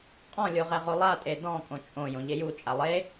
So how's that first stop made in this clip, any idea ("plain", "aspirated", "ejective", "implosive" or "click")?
ejective